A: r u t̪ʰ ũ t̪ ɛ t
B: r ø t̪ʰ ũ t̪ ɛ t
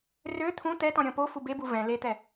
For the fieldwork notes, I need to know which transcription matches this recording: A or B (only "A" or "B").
B